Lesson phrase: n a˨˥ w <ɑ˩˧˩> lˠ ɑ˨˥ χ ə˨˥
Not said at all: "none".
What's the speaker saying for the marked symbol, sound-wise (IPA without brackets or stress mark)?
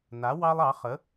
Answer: ɑ˥